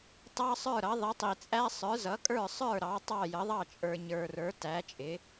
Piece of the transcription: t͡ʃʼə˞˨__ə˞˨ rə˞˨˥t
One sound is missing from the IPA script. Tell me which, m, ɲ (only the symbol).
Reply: ɲ